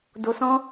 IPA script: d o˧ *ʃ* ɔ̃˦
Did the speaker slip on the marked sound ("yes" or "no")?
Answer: yes